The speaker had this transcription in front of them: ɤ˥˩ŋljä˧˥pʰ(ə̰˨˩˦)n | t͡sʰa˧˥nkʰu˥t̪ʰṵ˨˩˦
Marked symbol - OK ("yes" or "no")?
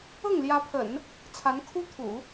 yes